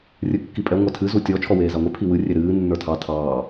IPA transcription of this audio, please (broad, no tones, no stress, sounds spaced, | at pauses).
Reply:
rʲ ɨ kː i pʼ ɛ ŋʷ a tʰ ɨ z u tʲ ɔ t͡ʃʰ ɔ w eː z a ŋʷ e pʰ i w ɨ rʲ e ɾ ɨː nː ə˞ tʰ ɑ tʰ ɑː